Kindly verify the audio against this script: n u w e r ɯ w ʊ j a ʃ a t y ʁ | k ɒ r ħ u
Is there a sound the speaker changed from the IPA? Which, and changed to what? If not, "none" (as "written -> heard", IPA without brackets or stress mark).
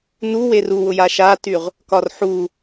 ɯ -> u